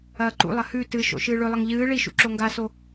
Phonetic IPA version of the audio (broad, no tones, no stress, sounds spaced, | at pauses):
ɐː ǃ ṵ lˠ ɐ h ʉ t ɨ ʃ o̰ ʃ ɨː ɭ ɵ lˠ ɐ ŋ ʎ ɨː ɭ i ʃ ṵ ǁ o ŋ ɡ a s o